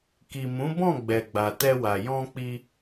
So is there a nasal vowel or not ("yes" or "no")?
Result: yes